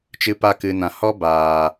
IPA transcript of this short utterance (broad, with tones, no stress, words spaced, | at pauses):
t͡ʃɨ˧pa˧ kɨ˨nã˨ hɔ˦baː˨